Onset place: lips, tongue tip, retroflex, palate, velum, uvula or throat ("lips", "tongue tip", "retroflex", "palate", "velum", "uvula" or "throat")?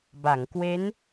lips